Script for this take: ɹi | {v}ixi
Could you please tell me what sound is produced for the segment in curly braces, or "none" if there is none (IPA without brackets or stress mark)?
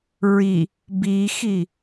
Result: b